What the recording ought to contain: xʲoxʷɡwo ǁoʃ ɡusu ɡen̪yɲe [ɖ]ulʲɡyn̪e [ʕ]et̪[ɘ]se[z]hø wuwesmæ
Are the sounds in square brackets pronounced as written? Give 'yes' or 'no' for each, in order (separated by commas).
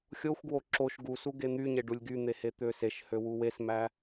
yes, no, no, no